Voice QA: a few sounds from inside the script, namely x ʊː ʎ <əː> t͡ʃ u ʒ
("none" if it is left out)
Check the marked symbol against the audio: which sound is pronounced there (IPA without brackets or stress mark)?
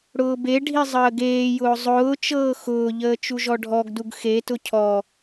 əː